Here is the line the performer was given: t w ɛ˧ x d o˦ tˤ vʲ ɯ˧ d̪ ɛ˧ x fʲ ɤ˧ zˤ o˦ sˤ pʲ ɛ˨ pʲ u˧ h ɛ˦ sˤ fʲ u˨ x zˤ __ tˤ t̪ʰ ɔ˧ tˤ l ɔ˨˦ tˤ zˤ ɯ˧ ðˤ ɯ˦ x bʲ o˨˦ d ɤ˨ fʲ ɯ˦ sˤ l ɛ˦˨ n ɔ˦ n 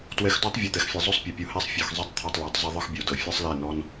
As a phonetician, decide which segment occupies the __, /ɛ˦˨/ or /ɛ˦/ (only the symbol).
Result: ɛ˦